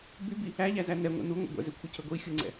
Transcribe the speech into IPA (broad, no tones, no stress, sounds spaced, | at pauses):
b y b i | æ ʎ æ z æ n ɛ ŋʷ ḛ n u ŋʷ ḛ ɡʷ ɛ̰ z ø kʷʰ i cʰ ø ɡʷ i xʲ u ŋ͡ǀ ɛ̰